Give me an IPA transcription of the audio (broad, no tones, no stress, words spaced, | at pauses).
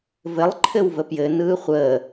vɘlˠǃʰɘwvə pjɘ nɯːχʷəː